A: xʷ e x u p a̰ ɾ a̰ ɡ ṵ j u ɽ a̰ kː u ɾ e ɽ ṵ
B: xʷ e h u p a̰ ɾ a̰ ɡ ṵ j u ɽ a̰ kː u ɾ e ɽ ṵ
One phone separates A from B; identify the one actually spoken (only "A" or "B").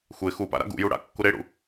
A